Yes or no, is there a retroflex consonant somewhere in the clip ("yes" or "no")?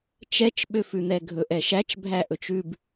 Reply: no